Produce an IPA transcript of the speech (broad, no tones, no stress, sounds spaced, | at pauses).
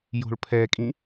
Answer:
j o̤ ɭ pʰ ɛ kʼ ĩ